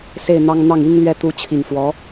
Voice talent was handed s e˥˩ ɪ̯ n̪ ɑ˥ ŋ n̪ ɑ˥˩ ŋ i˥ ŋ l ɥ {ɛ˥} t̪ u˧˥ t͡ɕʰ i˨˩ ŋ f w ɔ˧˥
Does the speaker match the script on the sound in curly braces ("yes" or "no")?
yes